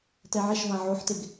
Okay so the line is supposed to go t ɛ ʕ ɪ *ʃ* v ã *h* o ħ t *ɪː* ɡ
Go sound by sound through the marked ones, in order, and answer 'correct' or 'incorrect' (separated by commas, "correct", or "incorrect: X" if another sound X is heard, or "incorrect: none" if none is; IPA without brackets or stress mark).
correct, incorrect: ʕ, incorrect: ɪ